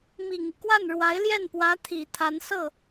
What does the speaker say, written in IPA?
mi˨˩ŋi˦kwa˥˩n ɻwa˧˥ɪ̯ljɛ˥˩npwä˧˥ t̪ʰi˨˩t̪ʰa˧˥n sɤ˥˩

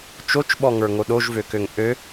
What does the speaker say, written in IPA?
t͡ʃot͡ʃɓɔŋə˞ ŋoɗoʒvøkøŋ ʔø

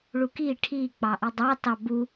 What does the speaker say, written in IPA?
ɭuki ʈʰik͡pɑʔi dˤɑ tɑbu

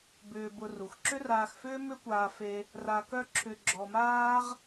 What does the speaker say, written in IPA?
bʏː˧bʊ˧ ru˩xǁʏ˥raː˧xfʏː˥ mʏ˥kʷaː˧fe˧ | ra˧kœ˥ǁʰʏ˧ ɡ͡ǁɔ˧maː˥ʁ

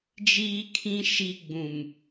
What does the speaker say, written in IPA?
d͡ʒiː˦kʰĩ˦ ʃi˦ ɡ͡bũ˨m

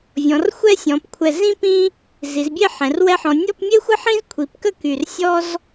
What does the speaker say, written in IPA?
vʲɔ̃˩˧rxʷɛ˥sʲɔ̃˩˧p kʷʰɛ˧˩ zĩ˥ pĩ˥ | zi˩˧zbʲe˥˧ ħɛ̃˩˧rwɛ˥ħɔ̃˧ nʲɔ˥˧pmʲe˥ xʷə˥ħĩ˥zkʷʰi˩˧pkə˥˧ ky˧˩rsʲɔ˥z

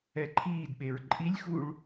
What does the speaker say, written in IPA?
ɛǃʰiːdɓeɹ ǃʼilʲxuɭ

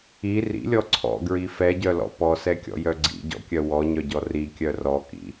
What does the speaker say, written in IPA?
i rḭlʲɔ ǀʰɔ̰ɡɹi fɛɟœlɔ̰ pɔsɛkʲɔ̰jœ ɡ͡ǀḭɟɔ̰kʲœ wɔɲœɟɔ rikʲœ rɔkḭ

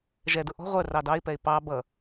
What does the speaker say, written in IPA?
ʒɛdʊ ʔɔ̤ ʁʷə˞r ɑdɑɪ̯pɛɪ̯ pɑ bʌ

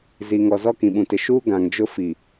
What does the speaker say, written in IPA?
zi˨ŋɔ˨ zɔ˦kĩ˨ɓũ˨tɪ˨ ʃuː˦ ɡã˨ŋd͡ʒʊ˦ fi˨

